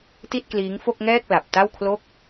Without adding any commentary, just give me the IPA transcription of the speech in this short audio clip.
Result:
t i˥˩ t̚ k l iː˦˥ ŋ f o˥˩ k̚ ŋ ɛː˥˩ k̚ l a˨˩ p̚ t a˥˩ w kʰ l o˥˩ k̚

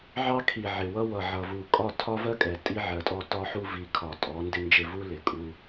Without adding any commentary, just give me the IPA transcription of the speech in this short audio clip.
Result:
ʕ ɑ˦ kʰ i˨ ʕ ɪ˨ w ʌ˦ w ʌ˨ ʕ ʌ˨ v u˨ kʼ ɒ˦˨ tʰ ɒ˦ v ɜ˦ kʼ ɛ˨ tʼ i˦ ʕ ɜ˨ tʼ ɔ˦ t ɒ˦ ħ u˦ v i˨˦ kʰ ɒ˨ tʼ ɔ˨˦ n d ɪ˦ n d͡ʒ ɪ˦˨ v u˦ l ɪ˨ kʼ u˦

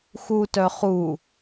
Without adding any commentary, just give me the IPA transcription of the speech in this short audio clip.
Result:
x u t œ χ u

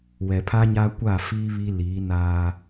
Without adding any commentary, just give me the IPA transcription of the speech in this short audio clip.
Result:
w ɛ˨ pʰ a˦ ɲ aː˦ kʷ a˦˨ f iː˦ β i˦ l iː˨˦ n aː˦

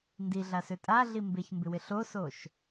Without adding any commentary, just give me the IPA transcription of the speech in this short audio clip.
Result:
n d i ɮ a s ø tʼ a ɮ i m b e ç m b ɪ w ɪ ɬ o s o ʃ

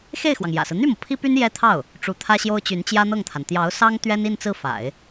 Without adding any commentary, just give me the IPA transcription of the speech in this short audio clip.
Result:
x e˥˩ ɪ̯ x w ɑ˩ ŋ j ä̰˨˩ s ɹ̩˦ n̪ y˥˩ m ɤ˩ pʰ i˥ p y˥ n j ɛ˥ t̪ʰ ɑ˥˩ ʊ̯ | ʈ͡ʂ u˧˥ t̪ʰ ä˥ ɕ j o˥ ʊ̯ t͡ɕ y˧˥ n t͡ɕ j ä˥ n̪ ɤ˥˩ ŋ t̪ʰ a˩ n t̪ j ɑ˧˥ ʊ̯ s ɑ˥ ŋ t̪ ɥ ɛ˥ n i˥˧ n t͡s ɹ̩˥˩ f a̰˨˩˦ ɪ̯

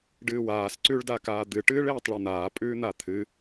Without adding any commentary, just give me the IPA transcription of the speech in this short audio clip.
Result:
ɖ ɨː w aː s ǀ ʉ ɭ d a k aː d̪ ɨ ʈ ɨː ɭ eː tˤ ɭ e n̪ aː pʼ ʉː n̪ a t̪ʰ ɨ

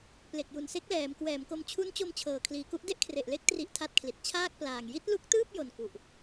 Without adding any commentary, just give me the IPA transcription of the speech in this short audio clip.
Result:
p l e˨˩ k̚ j u˨˩ n s e˦˥ k̚ l ɛː˩˦ m k w ɛː˩˦ m k o˧ m t͡ɕʰ u˦˥ n t͡ɕ o˧ m t͡ɕʰ ɤː˨˩ kʰ l iː˩˦ k u˦˥ ʔ d e˥˩ ʔ kʰ r e˨˩ ʔ l e˦˥ k̚ t r i˦˥ ʔ tʰ a˦˥ t̚ kʰ l i˨˩ t̚ t͡ɕʰ aː˥˩ k̚ p l aː˨˩ ŋ j i˦˥ t̚ l u˦˥ k̚ t ɯː˥˩ p̚ j o˨˩ n k u˨˩ ʔ

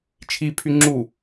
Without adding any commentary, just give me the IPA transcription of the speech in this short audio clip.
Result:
t͡ʃʰ i pʰ y ŋ͡ǁ u

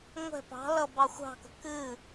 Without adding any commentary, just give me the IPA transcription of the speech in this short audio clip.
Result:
ŋʷ ɛ̤ p ɑ̤ l ʌ b ɑ xʷ ɑ̤ k ə̤ k ɨ

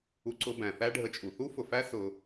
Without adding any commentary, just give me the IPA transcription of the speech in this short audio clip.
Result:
u˧ ǀ ʊ˧ b æ̃˩ θ æ˥ ɖʱ ə˧ t͡ʃʼ u˩ θ u˥ f ʊ˩ f æ˥ s ʊ˧

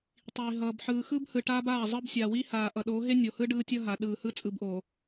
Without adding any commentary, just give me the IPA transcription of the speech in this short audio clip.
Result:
tˤ iː˨ ɦ ʌː˨ b ħ ɯː˨ x ɯ˦ b h ɯ˨ ʈ aː˦ b aː˦˨ zˤ ɯ˦ b sʲ aː˨ w i˦ h aː˨ ʔ ʌ˨ ɗ oː˨˦ ɦ e˦ nʲ o˨ h ɯ˦ ɖ ɯː˦ tʲ ʌ˦ ɦ a˨ ɗ ɯː˨ h ɯ˦ t͡sʼ ɯ˨ b ʔ oː˨

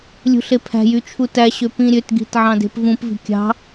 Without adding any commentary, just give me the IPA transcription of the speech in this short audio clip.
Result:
lʲ ṳ ɬ e pʰ æ̤ j y t͡ʃʰ u t æ ɕ ø p ĩ ɾʲ ø t ɡ i̤ t ʕ ɑ̃ d e̤ p v ũ p v i̤ kʲ ɑ̤

